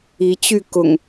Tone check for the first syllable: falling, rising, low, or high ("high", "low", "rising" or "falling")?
rising